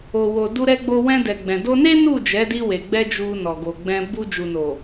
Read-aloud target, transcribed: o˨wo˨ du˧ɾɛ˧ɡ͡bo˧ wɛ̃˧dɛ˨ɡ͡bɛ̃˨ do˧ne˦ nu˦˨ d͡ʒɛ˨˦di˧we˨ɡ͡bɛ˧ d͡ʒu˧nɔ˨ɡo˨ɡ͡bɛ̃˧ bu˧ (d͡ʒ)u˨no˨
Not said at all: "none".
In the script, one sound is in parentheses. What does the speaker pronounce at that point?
d͡ʒ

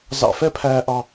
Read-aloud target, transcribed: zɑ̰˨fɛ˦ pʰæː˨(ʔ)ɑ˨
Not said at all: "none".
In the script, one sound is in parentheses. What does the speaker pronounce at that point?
ʔ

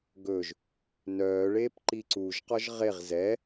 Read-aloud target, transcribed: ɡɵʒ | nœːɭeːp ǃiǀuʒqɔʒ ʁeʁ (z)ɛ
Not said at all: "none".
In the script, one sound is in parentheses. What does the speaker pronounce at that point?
z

